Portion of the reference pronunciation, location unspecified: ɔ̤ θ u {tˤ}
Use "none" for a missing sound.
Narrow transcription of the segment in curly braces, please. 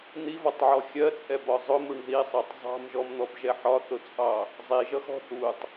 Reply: tˤ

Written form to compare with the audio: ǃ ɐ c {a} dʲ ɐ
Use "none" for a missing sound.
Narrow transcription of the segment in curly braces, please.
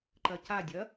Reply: a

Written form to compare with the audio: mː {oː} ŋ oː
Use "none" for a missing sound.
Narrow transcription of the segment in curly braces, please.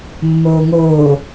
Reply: oː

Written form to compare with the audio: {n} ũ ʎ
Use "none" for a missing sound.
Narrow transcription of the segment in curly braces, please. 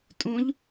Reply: tʼ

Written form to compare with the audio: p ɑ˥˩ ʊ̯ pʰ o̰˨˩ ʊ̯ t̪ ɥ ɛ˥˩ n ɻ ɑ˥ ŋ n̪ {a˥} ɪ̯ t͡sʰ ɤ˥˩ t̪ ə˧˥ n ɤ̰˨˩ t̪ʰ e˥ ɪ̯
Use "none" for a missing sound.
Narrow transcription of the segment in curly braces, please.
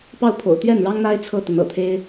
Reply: a˥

